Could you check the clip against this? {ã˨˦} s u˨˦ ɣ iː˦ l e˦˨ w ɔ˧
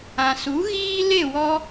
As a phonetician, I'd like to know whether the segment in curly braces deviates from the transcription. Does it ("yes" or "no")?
yes